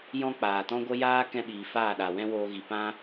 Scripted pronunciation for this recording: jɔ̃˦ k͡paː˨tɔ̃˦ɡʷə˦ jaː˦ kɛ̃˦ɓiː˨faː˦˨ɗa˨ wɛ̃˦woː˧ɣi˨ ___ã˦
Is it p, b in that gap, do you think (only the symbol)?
p